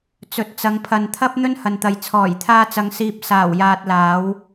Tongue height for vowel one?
mid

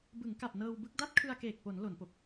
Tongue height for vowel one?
high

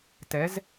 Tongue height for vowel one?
mid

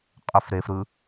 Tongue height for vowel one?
mid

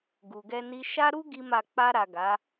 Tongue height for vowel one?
high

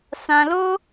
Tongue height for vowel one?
low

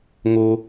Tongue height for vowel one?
mid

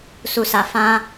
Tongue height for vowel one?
high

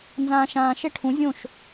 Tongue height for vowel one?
low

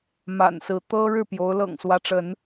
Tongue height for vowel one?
low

